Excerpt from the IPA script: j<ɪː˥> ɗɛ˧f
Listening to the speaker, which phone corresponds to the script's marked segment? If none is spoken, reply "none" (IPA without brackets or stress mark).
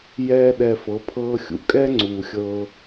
ɛː˥